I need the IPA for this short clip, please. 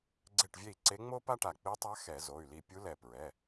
ɡ͡ǀ e˧˩ ʈ vʲ e˧˩ i̯ ǀ e˧˥ ŋ͡m o˥ p a˥ ʈ a˧˩ k͡p i˧˥ tˤ a˧˥ x ɛ˧˩˧ z o˩˧˩ y̯ l i˧˩ pʲ u˧˥ l ɛ˧˩ p ɹ ɛ˩˧˩

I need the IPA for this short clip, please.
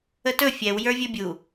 ə t ɵ fʲ ɛ w j ə˞ vʲ ɵ bʲ u

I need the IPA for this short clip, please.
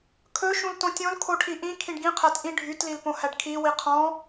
kʰ ɵ ʃ ũ l t õ tʲ õ l kʰ o ʈʰ i ʔ ĩ kʰ ĩ ɖ ɡ ĩ qʰ æ t ʔ ĩ ɖʱ y t l i l p õ h æ ɖ kʰ i w i qʰ ɔ̃

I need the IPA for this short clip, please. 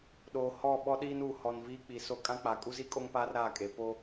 ɗ oː˨ h ɔ˦˨ ɓ ɔ˦ ɗ iː˦ n u˨ h ɔ˨ n v iː˦ k͡p i˨ s o˦ kʼ ã˦ k͡p a˨ kʼ u˦ z i˦ kʼ o˦ ŋ p aː˦ r ɾ a˦˨ kʼ e˨ p o˦

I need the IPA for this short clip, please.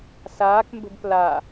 s aː k m b ə̤ b p l a

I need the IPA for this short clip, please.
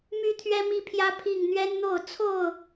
m y˦ t̪ʰ ɥ ɛ˦ m i˥˨ pʰ j ä˦ pʰ i˥˨ ŋ n̪ ɥ ɛ˦ n n̪ o˥˨ ʊ̯ t͡sʰ o˥˨ ʊ̯

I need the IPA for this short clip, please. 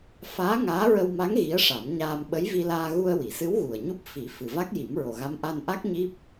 f aː˧˥ ŋ aː˧˥ ɹ ə˧ w m a˧˥ ŋ ɣ i˧˥ ə̯ ʂ a˨˩˦ m ɲ aː˧ m ɓ ə˧˥ j v i˧ l aː˧ ɣ u˧ ə̯ w i˨˩˨ s ɨ˧˥ w ɣ u˨˩ ə̯ ɲ u˦˥ p̚ f i˨˩˦ f ɨ˨˩ v a˦˥ k̚ j i˨˩˦ m ɹ o˨˩ ɣ a˧˥ m ʔ a˧ n ʔ a˦˥ k̚ ɲ i˦˥ p̚

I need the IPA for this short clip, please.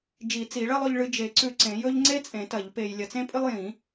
d͡ʒ i˨˩˦ t͡s i˨˩˦ ɭ ɐ˥ lˠ ɵ˧ ʎ ɭ ɨ˧ d͡ʒ e˨˩˦ ǀ ʉ˧ ǀ ẽ˨˩˦ j ɵ˥ ʎ ŋ͡ǀ e˥ t͡sʼ ẽ˨˩˦ t ɐ˨˩˦ ʎ p e˧ j lʲ ɐ˧ t͡s ẽ˥ pʼ ɨ˥ lˠ j ĩ˨˩˦

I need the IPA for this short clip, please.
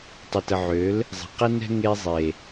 tˤ ə˨ t ə˨ ʕ ø˨˦ l | zˤ ɛ̤˨ q ɛ˦ n ɛ̤˧ ŋ e˧ zˤ e˨

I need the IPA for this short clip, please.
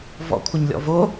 v ɔ̰ kʷʰ ə ɲ lʲ ɔ̰ v o

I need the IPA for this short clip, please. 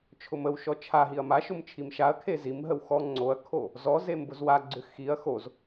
t͡ʃʰ ʊ m ə w ʃ ɔ t͡ʃʰ a ɦ i ɐ̯ m a ʃ ʊ m t͡ʃʰ i m ʃ a ɐ̯ kʰ e z i m ɦ ə w x ɔ ŋ͡ǀ o ɐ̯ kʰ o | z ɔ z e m b ʊ z w a ɡ͡ǀ ʏ x i ɐ̯ x o z

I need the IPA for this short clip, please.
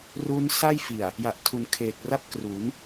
r u˦˥ n s a˥˩ j f i˨˩ a̯ | j a˨˩ ʔ tʰ u˩˦ n kʰ eː˨˩ k̚ r a˥˩ p̚ k r u˩˦ n

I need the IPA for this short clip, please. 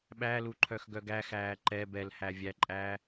ɓ æ l u ǃʰ œ x ɡ œ ɡ æ x æː ǃ ɛ b ɛ l h æ vʲ æ ǃʼ æ

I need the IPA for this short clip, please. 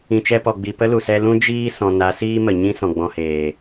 ĩ˨ t͡ʃ ɛ˧ p ɔ˨ ɡ͡b i˨ p ə˦ l u˨ s ɛ˧ l ũ˦ d͡ʒ iː˦ s ɔ̃˨ n a˨˦ s iː˦ m ə˨ ɲ ĩ˦ s ɔ̃˨ ɡ͡b ɔ̃˧ h eː˨

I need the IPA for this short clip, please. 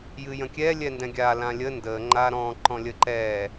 j ɨ j ə̃ kʲ ɛ lʲ ɛ n d ɛ̃ ɡʲ a l ã lʲ ə n d ə ŋ͡ǃ a ɾ ɔ̃ ǃ ɔ̃ lʲ ə ǃ ɛ

